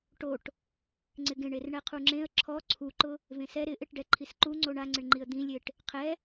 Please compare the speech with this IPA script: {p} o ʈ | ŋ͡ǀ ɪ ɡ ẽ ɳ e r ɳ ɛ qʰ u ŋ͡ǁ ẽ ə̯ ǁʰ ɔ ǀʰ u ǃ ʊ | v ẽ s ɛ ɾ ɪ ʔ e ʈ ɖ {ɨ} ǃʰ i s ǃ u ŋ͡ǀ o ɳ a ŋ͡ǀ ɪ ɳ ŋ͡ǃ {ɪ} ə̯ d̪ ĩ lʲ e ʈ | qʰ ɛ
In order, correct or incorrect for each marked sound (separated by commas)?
incorrect, incorrect, incorrect